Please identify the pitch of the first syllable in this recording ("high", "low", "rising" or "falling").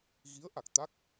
rising